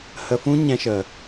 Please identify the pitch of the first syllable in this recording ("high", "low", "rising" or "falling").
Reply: high